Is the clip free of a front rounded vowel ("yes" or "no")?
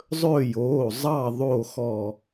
yes